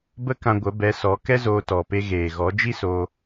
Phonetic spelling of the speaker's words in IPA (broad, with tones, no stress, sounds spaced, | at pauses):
b ə˦ k ã˧ ɡʷ ə˨˦ b ɛ˨˦ s ɔ˨˦ k ɛ˦ z oː˧ t ɔ˨ p e˧ ɣ eː˨ ɣ ɔ˨˦ d͡ʒ i˦ s oː˧